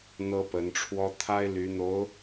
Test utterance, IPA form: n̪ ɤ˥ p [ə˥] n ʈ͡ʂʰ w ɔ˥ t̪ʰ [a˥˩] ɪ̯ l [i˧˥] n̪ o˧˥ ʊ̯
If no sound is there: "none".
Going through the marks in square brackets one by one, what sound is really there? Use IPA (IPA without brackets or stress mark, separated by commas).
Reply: ə˧˥, a˥, y˧˥